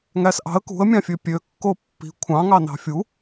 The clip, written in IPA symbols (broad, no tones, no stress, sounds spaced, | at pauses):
ŋ æ s ʔ ɑ̤ ə̯ k ṳ ə̯ mʲ ɑ̃ fʲ ø pʲ ø kː o pː i̤ kʷʰ ɑ̃ ŋ ɑ n ɑ̤ fʲ u